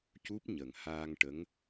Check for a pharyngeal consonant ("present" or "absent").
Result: absent